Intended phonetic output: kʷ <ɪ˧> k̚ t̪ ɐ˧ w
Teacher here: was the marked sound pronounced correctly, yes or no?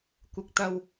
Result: yes